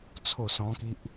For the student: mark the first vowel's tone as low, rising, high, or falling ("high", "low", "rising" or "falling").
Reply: falling